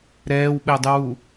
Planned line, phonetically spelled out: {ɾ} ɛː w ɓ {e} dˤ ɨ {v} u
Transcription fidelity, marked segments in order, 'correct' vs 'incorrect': correct, incorrect: ɛ, incorrect: w

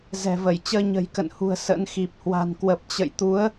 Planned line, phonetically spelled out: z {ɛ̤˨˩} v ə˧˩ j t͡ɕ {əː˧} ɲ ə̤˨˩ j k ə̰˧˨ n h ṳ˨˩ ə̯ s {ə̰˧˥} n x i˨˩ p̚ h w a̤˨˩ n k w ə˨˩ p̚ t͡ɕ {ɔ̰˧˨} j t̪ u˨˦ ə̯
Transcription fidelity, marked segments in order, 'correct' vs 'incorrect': correct, correct, correct, incorrect: ə̰˧˨

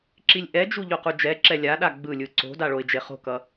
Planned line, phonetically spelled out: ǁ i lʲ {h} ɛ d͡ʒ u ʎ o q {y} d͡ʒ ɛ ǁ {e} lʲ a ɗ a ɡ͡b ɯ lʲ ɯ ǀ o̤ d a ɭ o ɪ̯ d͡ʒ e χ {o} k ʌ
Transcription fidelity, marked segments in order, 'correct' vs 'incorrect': incorrect: ʔ, incorrect: u, incorrect: ɛ, incorrect: o̤

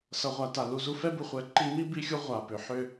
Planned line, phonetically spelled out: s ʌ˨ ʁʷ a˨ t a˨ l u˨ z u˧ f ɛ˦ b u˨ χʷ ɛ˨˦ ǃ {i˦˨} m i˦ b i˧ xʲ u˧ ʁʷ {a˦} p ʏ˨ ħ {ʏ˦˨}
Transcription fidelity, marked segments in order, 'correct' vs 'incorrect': incorrect: i˧, incorrect: a˨, correct

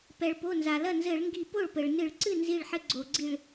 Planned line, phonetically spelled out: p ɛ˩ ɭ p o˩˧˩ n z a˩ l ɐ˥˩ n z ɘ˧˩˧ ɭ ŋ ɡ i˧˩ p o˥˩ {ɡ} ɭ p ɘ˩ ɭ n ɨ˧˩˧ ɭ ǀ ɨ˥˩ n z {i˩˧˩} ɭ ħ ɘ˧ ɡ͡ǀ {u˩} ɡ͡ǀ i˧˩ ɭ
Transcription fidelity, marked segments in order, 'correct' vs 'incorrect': incorrect: none, incorrect: i˧˩, incorrect: o˩

